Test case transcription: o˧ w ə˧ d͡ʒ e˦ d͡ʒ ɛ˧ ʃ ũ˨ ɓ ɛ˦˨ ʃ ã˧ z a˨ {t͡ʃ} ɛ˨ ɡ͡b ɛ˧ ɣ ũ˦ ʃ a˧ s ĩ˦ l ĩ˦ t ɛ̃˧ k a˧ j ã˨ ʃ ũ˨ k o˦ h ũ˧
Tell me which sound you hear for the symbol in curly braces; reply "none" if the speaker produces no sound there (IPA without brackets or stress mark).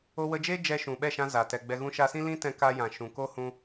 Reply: t